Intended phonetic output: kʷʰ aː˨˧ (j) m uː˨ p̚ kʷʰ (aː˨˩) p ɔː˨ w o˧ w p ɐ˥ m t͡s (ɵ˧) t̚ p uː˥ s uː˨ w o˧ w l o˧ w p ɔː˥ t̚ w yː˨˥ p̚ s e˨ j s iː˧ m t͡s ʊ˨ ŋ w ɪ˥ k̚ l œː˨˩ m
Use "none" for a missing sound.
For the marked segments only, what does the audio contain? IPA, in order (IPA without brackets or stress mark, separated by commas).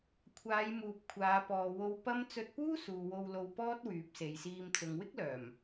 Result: j, aː˨˧, ɵ˧